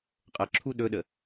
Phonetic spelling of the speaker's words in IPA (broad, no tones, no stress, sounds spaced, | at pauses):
qʼ ə ǁʰ u ɗ ɵ ɗ ə